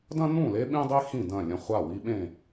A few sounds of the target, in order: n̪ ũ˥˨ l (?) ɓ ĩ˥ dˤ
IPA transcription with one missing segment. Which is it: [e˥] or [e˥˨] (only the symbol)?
e˥